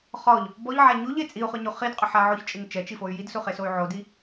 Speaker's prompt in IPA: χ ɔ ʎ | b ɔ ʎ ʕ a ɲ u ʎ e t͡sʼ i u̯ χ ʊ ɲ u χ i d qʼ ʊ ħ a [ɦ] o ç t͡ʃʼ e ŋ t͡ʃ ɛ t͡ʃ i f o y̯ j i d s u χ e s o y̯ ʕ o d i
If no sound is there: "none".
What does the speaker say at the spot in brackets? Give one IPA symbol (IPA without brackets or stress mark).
ʕ